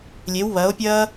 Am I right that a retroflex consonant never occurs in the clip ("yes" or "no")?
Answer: yes